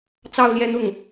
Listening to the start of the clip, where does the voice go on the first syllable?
falling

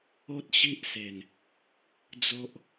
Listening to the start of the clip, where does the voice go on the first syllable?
high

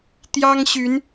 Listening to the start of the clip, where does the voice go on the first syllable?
high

